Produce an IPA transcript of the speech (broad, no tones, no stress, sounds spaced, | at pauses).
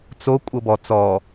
t͡s o kʷʼ ɤ b ɔ t͡s ɔ